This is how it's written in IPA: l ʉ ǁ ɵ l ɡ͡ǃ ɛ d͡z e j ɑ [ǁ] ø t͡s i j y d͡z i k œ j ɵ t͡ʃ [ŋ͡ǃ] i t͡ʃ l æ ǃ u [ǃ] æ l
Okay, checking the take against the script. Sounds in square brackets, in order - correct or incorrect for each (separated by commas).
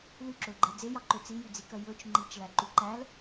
incorrect, correct, correct